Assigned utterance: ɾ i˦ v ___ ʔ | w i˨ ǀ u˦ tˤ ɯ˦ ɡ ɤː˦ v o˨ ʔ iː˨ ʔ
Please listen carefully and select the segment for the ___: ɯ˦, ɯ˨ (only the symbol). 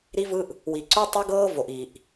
ɯ˦